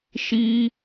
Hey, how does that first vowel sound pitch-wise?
high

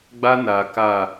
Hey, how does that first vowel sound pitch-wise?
high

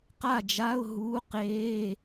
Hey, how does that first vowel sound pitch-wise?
falling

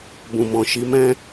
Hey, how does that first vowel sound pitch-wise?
low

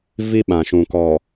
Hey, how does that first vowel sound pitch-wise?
high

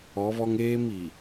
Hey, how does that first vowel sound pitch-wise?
rising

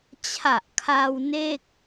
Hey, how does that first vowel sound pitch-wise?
low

